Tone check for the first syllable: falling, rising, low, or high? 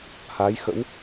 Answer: rising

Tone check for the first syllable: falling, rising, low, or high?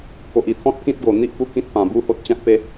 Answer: low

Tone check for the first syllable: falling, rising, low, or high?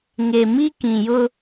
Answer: low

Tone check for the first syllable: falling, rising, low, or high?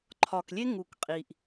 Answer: low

